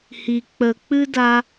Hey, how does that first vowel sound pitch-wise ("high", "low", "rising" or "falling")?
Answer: low